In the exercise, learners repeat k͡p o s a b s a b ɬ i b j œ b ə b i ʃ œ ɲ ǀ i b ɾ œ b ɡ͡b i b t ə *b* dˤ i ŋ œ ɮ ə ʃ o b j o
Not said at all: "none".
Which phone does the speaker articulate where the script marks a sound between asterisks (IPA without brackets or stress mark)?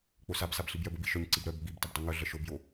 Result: b